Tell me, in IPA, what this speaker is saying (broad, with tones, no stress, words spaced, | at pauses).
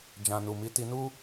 d͡ʒã˨nu˨mi˨˦ ti˧nu˦